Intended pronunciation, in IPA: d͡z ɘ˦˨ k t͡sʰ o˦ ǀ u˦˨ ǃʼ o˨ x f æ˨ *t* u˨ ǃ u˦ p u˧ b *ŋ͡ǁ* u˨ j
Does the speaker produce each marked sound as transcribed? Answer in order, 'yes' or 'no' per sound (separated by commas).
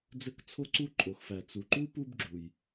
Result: no, no